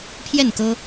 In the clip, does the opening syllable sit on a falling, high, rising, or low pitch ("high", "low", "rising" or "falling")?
falling